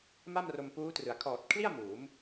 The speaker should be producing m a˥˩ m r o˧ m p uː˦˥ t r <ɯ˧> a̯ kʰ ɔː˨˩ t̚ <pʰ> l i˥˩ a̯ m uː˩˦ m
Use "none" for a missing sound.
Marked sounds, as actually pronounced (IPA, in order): ɯ˩˦, kʰ

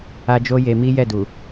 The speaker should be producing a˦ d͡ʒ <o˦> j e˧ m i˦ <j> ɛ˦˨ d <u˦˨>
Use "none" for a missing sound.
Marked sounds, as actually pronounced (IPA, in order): o˦, j, u˨

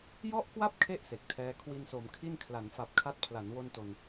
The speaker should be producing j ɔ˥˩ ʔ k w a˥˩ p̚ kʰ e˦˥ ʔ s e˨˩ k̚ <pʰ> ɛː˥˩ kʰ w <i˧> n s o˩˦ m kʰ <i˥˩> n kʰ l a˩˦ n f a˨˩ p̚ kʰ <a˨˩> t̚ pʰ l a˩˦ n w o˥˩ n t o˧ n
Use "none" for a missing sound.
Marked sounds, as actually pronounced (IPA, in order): tʰ, i˧, i˥˩, a˦˥

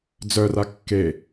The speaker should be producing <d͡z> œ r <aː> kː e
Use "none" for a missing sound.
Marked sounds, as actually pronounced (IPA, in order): d͡z, a

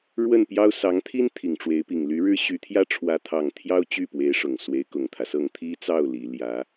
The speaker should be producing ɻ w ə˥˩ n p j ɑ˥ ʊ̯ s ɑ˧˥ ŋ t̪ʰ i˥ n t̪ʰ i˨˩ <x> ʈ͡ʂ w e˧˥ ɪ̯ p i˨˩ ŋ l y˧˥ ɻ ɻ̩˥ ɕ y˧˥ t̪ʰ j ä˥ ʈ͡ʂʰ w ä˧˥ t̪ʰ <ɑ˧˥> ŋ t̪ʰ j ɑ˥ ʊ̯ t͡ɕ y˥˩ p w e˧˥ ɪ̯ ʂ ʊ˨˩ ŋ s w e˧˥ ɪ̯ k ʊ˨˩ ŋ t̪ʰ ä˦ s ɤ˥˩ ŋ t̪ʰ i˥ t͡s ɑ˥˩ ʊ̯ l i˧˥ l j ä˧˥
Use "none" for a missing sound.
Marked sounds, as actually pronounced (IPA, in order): ŋ, ɑ˨˩

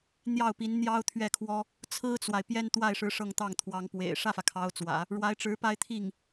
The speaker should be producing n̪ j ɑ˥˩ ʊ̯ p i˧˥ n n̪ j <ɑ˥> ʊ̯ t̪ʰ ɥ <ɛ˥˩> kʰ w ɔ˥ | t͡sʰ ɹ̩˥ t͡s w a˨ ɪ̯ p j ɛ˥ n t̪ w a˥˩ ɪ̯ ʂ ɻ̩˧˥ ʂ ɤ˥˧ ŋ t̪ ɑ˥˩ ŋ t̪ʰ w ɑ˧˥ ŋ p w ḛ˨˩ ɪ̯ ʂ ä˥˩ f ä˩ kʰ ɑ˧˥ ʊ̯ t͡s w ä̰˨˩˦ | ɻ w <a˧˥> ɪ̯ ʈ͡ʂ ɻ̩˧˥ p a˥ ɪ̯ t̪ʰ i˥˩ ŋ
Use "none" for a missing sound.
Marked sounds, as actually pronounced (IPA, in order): ɑ˥, ɛ˥˩, a˧˥

